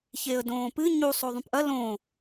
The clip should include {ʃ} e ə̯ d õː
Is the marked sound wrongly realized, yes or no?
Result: yes